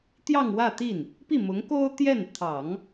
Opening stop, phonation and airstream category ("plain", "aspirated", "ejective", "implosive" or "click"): plain